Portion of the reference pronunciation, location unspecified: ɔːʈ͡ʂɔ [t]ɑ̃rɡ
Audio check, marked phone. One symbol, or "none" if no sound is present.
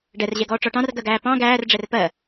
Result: ʈ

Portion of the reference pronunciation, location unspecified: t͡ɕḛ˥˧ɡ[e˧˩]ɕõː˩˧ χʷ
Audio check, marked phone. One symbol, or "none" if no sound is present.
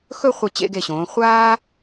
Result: e˧˩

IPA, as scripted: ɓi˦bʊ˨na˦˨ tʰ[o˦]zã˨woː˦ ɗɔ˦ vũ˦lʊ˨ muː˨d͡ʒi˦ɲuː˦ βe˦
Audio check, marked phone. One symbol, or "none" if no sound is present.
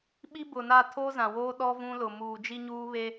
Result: o˦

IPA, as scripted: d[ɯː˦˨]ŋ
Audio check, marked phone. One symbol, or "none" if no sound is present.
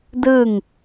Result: ɯː˦˨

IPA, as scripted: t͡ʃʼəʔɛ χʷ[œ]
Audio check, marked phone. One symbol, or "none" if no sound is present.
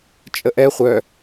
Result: œ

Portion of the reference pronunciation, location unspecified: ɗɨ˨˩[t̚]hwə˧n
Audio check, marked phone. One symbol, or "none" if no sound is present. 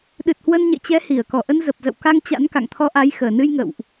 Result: t̚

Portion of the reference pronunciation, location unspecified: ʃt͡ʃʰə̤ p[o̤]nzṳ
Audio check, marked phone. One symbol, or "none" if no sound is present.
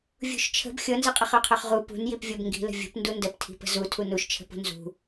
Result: ṳ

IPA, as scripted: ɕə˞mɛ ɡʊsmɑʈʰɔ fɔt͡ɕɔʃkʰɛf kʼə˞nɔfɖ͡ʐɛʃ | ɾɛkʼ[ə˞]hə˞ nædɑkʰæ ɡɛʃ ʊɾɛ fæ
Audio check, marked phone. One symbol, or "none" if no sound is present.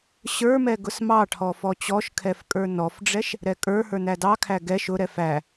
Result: ə˞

